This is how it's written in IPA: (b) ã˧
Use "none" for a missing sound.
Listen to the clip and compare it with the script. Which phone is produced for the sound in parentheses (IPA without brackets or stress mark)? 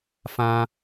f